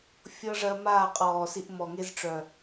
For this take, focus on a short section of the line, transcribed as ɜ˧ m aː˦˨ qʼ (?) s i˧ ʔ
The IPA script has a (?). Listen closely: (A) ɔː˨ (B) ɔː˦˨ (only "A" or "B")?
A